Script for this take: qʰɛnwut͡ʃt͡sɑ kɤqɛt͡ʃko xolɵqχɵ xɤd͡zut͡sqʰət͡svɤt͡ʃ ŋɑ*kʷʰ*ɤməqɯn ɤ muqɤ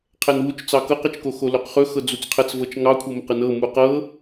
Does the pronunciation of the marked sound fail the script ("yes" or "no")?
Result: no